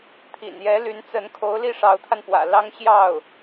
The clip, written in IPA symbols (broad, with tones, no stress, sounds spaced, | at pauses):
t̪ʰ ḭ˨˩ n j ɛ˧˥ l y˧˥ n t͡s ə˧˥ n kʰ o˧˥ ʊ̯ l i˥˩ ʂ ɑ˧˥ ʊ̯ t̪ʰ a˧ n p w ä̰˨˩ l ɑ˥ ŋ ɕ j ɑ˥˩ ʊ̯